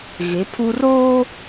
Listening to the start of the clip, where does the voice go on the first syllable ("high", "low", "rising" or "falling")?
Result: rising